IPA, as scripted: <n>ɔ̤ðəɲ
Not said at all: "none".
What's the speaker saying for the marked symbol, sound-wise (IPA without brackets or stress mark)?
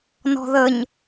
n